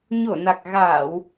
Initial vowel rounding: rounded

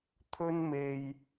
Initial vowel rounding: rounded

